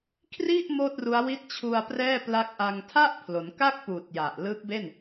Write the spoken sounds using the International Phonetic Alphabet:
kʰ r i˥˩ ʔ m oː˥˩ t̚ r u˦˥ a̯ w i˦˥ t̚ t͡ɕʰ u˧ a̯ p r ɛː˥˩ p l a˦˥ k̚ ʔ a˧ ŋ tʰ a˥˩ ʔ pʰ l o˩˦ n k a˥˩ k̚ p uː˨˩ t̚ j a˨˩ ʔ l ɯː˦˥ k̚ b e˥˩ n

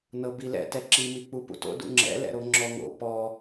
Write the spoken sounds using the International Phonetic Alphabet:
n ɤ b i l ɛ̰ t ɛ ǁ i m i k͡p u p ṵ t o̰ d ṵ ŋ͡ǁ ɛ̰ l ɛ̰ ɾ o ŋ͡ǁ ɔ ŋ o̰ p ɔ

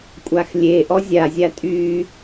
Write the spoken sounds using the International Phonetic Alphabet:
kʷʼ a x lʲ e ʔ ɔ zʲ a zʲ a tʼ y

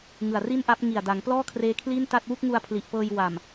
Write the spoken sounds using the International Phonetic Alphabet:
ŋ ɯ˨˩ a̯ r i˥˩ n ʔ a˦˥ p̚ ŋ i˨˩ a̯ d a˩˦ ŋ p l ɔː˥˩ kʰ r eː˦˥ kʰ l i˥˩ n t a˥˩ t̚ w u˥˩ k̚ ŋ u˧ a̯ pʰ l i˨˩ ʔ p ɤː˧ j w a˨˩ m

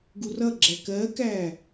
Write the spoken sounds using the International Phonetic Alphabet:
ɡ u r ʌ ɡ͡ǁ æ k ɜ k æ

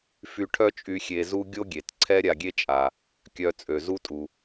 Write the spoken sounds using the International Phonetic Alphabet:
f y˧ ʈʰ œ˥ t͡ʃʼ y˧ xʲ e˧ z u˥ ɡʲ o˥ ɡʲ e˩ t ǀʰ ɛ˥ ɾʲ a˧ ɡʲ e˥ t͡ʃʼ a˩ | kʲ œ˧ t͡sʼ ø˩ z u˥ tʼ u˩

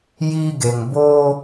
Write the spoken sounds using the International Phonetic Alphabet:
j i˦ ɡ e˨ ŋ b o˦

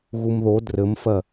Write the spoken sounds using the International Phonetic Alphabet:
ɣ u m ð o d r ɘ m f ɜ

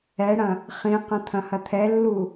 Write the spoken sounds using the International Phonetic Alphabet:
ɛ ɽ ɐ̃ | χ ĩ q ɐ̃ t̪ʰ ɐ̃ h ɐ t̪ʰ ɛ lː u

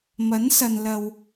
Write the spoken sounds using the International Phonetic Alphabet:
m ɐ˨˥ n s ɐ˨ n l ɐ˨ w

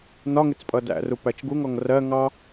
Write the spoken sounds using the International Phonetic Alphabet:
n ɒ ŋ ɪ t͡s pʼ ʌ d æ̰ r u p æ t͡ʃ ɡ u ŋ ɔ ŋ r ɜ ŋ ɑ

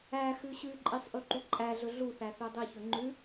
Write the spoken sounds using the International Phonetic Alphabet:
æ x ʉ ɕ ʉ ǃʼ i sˤ ʔ ʉ ǃ u ǃʼ æ ɮ ɵ ɮ u θ æ θ ø dˤ i ç ɵ ŋ͡ǃ ʉ

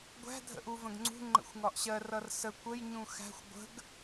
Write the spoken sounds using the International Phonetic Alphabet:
ɡʷ æ̤ dʱ ə̰ ʔ u v ə̃ ɡ ŋ͡ǀ ṳ ŋ͡ǃ ə̰ xʷ ŋ ɒ ʔ ɕ ɜ r ʌ r s ə kʷ ə j ɲ ũ x æ̤ xʷ ɡʷ ə̤ ɡ

